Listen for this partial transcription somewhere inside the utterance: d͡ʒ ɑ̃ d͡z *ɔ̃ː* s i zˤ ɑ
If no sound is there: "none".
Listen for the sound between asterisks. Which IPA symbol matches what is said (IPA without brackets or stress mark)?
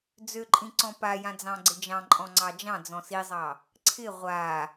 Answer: ɔ̃